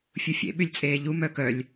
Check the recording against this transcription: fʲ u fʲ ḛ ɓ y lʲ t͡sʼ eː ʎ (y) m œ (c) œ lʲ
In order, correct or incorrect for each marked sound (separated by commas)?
incorrect, incorrect